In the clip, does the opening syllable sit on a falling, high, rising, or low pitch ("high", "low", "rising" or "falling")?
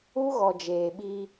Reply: high